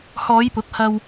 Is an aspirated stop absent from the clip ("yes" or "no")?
yes